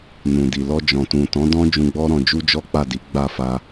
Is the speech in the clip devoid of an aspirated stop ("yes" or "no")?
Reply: yes